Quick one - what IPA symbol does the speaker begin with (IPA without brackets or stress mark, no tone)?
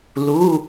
l